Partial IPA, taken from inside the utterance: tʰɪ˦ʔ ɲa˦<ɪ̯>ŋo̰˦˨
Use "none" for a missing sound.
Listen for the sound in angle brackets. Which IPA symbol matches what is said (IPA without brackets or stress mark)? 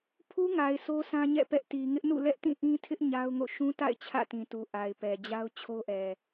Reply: ʊ̯